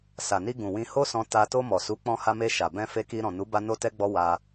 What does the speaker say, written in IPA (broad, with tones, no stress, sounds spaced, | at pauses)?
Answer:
s a˨ n i˧ ɡ ũ˨ w ĩ˧ h o˦ s ɔ̃˧ t a˧ t o˧ m ɔ˨ s u˨˦ k͡p ɔ̃˧ h a˧ m e˧ ʃ a˨ b ɛ̃˧ f e˧ k i˧ ɾ ɔ̃˨ n u˨˦ b a˦ n o˦ t ɛ˦ ɡ͡b ɔ˦ w a˧